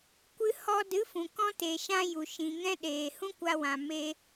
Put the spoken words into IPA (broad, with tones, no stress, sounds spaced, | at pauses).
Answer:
kʷ ɨ˧ h ɔ˧ d ɨ˨˦ f ũ˨ k ɔ̃˦ t e˨ ʃ ã˦ j u˨ ʃ ĩ˨ ŋ ɛ̃˦ ɗ eː˨ h ũ˦ kʷ a˧ w ã˨ m eː˧